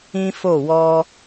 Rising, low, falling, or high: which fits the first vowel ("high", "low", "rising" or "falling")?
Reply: high